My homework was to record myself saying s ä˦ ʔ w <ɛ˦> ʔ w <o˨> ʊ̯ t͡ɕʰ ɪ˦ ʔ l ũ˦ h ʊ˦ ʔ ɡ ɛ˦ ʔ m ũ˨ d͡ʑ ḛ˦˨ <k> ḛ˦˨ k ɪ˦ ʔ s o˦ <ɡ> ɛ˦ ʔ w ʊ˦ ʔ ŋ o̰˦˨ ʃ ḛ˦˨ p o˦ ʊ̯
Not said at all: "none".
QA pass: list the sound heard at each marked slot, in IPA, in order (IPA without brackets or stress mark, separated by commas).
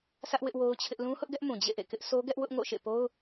ɪ˦, o˦, ʔ, ɡ